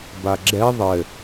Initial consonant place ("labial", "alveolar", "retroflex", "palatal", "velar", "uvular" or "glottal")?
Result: labial